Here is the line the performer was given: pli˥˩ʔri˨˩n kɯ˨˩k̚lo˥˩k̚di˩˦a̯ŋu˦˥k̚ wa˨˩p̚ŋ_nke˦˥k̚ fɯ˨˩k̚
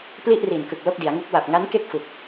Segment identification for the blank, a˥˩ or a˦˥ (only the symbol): a˦˥